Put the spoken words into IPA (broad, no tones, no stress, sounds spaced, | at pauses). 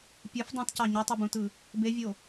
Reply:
pʲ ɯ f dˤ ĩ t c ɑ ɲ y tˤ ɯ b ũ t ɯ | b e vʲ o